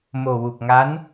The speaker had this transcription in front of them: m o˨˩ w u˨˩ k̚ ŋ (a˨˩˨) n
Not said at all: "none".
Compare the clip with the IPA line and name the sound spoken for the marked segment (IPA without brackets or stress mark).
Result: a˧˥